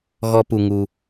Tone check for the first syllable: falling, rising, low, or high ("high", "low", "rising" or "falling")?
high